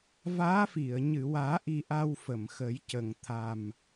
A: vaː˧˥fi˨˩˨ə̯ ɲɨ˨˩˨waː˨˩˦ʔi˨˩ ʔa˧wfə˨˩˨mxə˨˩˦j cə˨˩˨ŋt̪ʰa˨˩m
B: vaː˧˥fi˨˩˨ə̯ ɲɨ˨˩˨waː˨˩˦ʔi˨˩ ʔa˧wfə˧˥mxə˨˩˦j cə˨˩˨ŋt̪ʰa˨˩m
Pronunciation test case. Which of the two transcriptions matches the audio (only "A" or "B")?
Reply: A